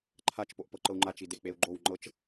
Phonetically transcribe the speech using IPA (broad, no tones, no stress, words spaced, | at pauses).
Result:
ǃʰat͡ʃ poʔpɤǃɤu̯ŋ͡ǃa t͡ʃidek͡peu̯ɡ͡ǃow ŋ͡ǃɤt͡ʃ